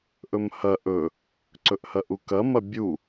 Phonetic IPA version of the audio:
ʔ ɵ m h ɐ ʔ ɵ | ǀ ɵ ʔ h ɐ ʔ u k ɐ m ɐ bʲ u

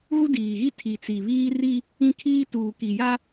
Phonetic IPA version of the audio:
ɣ u˦ d iː˨ ɣ i˦ tʰ i˨ t͡s i˨ β iː˦ r i˦ | ĩ˦ kʰ iː˦ t uː˨ k i˨ j a˦

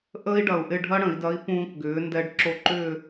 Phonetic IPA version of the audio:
ʔ əː˥ i̯ ɖ ɐ˧˩ u̯ ʔ ɪ˥˨ ɖʱ ɐ˥ ɽ ə̃˩˧ i̯ d ɐ˧˥ i̯ p ũː˧ k ɡ ʏː˩˧ n d ɛ˧˥ ɖ ǁ o˧˥ ǃ ʏː˥˨

